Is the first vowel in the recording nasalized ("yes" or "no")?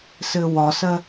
no